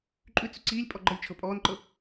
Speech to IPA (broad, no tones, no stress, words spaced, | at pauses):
ǃʼʉt͡sʉ ǀiːlʲ pʼɔɡ͡ǃʌlʲt͡ʃʰɤ pʼɔːnǃɤ